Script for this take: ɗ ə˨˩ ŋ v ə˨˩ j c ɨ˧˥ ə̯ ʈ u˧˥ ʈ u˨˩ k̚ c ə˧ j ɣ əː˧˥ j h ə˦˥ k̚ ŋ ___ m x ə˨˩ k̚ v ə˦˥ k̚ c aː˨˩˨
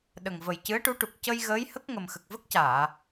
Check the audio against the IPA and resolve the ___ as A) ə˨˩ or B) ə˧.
A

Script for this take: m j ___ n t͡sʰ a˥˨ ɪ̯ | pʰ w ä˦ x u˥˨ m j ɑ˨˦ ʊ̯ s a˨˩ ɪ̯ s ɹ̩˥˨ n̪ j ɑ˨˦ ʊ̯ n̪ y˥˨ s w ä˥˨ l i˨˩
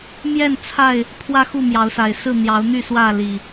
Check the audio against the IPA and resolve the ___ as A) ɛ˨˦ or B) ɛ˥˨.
B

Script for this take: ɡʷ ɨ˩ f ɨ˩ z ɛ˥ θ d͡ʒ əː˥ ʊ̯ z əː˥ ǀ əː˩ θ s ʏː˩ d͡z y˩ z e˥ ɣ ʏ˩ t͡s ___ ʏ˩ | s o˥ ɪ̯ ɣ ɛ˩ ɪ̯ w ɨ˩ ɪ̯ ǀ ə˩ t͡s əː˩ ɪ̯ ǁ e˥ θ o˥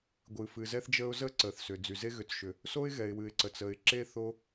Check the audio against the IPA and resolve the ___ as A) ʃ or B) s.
A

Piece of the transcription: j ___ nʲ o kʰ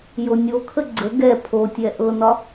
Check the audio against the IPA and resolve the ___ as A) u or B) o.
B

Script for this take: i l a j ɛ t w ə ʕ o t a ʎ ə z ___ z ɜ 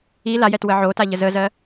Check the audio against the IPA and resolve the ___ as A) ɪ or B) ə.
B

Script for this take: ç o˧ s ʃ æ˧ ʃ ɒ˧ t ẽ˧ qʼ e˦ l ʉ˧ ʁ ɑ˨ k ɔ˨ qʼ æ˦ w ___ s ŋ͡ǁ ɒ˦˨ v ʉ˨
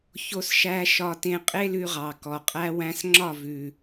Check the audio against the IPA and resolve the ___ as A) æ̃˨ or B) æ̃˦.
B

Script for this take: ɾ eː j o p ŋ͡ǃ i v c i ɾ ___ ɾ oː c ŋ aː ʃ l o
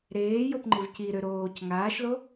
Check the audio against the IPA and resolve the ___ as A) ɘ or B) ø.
B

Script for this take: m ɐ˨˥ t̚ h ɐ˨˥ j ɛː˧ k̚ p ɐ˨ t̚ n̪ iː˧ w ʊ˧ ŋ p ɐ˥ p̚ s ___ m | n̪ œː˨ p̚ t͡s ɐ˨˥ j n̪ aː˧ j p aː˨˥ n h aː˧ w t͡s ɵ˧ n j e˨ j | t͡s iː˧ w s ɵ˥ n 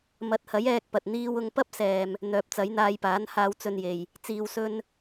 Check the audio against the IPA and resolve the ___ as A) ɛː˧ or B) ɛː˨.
B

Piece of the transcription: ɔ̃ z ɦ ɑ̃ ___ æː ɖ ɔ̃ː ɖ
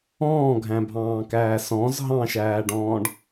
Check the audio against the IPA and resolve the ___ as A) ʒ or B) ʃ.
B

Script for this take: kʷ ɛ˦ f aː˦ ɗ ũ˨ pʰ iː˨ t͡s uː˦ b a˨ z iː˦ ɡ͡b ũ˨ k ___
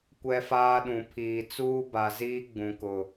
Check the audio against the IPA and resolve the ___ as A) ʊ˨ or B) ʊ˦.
A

